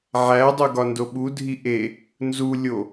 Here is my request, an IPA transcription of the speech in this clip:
ʕædˤu ɡɒndoɓudʱi ʔe | nzulʲo

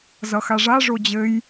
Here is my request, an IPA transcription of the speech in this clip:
zʌxaʐa ʐod͡ʑɘj

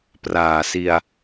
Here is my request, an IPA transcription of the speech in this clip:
praː˨˩si˧a̯

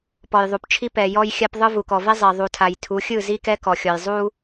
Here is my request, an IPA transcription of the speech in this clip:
pɔ˨jðˤu˨pt͡ʃʰi˦ pɛ˨jɔ˦j xʲa˦pðˤɯ˦ vu˨kɔ˨ve˦ zˤe˨ ðˤu˨tʰa˨j tʰu˨˦xʲɯ˦˨zi˦kɛ˦ kɔ˨xʲɔ˨j zˤu˦

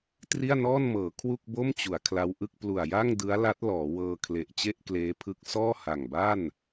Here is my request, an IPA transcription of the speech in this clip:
tri˥˩a̯nɔː˥˩n mɤː˩˦ kʰwu˥˩k̚bo˥˩mt͡ɕu˩˦a̯ kʰla˦˥wʔɯ˥˩k̚ plu˨˩a̯ja˥˩ŋdɯ˦˥a̯la˦˥t̚ lɔː˩˦wɤː˧ kʰle˨˩ʔt͡ɕe˥˩ʔkleː˦˥pʰɯ˦˥k̚ sɔː˥˩ha˨˩ŋba˥˩n

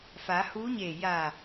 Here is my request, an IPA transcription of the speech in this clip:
fa˩˧huː˧˥ɲeː˧˩ jaː˧˩

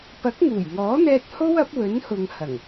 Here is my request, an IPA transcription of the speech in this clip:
pɐ˨˥k̚ŋuː˨˩jŋɔː˨˥n̪ɛː˧t̚ ho˥wɐ˨˥p̚wɵ˨˥nhʊ˨ŋ hɐ˨˩ŋ

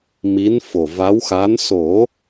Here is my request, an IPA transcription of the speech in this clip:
mi˧˥nfo˨˩va˧˥w xa˧˥n so˨˩˦

